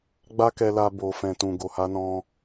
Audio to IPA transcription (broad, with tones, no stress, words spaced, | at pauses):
ɡ͡ba˦kɛ˧la˧ bo˨fɛ̃˨tũ˨ ɡo˨ha˧nɔ̃˧